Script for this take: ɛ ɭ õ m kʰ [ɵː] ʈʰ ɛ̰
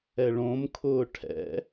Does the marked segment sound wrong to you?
yes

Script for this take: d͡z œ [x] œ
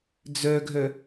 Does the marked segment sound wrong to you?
yes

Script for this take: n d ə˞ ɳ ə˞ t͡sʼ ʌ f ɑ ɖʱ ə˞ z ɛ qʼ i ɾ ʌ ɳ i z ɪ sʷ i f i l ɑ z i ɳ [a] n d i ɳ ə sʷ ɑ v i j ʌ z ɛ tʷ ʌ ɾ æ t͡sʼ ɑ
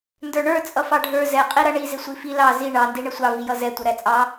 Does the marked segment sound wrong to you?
yes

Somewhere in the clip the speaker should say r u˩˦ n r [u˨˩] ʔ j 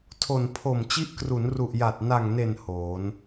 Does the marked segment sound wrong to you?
no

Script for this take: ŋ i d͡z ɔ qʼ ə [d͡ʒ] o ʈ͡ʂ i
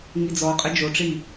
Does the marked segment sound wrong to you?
no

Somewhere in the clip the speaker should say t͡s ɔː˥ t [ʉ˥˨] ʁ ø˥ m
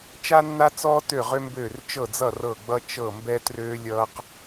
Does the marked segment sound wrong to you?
yes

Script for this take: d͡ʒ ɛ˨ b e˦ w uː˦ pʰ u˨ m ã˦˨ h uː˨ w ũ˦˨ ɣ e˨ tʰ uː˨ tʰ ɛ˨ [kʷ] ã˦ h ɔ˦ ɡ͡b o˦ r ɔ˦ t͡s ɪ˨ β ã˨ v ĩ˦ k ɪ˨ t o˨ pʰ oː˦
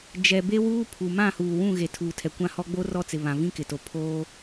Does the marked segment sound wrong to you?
no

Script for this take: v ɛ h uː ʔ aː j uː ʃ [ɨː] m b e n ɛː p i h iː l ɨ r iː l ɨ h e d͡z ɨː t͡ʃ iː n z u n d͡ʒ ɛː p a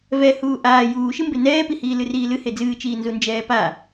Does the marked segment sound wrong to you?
yes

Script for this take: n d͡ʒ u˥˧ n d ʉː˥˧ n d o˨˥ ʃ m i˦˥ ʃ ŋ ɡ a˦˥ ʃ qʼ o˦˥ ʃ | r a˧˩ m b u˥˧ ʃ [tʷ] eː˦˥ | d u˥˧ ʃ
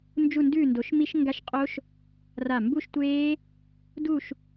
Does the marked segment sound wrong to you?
no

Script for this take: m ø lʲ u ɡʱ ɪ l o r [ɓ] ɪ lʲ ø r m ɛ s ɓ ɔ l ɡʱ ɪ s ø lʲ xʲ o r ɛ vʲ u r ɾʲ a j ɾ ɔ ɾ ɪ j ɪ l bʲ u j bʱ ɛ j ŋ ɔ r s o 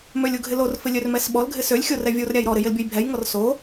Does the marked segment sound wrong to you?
yes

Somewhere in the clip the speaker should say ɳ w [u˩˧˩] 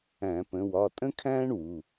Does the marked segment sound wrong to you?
no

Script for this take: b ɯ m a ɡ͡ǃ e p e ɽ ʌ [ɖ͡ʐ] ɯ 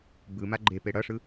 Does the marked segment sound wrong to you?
yes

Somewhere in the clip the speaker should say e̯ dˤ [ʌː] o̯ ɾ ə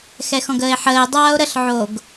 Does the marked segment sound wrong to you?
yes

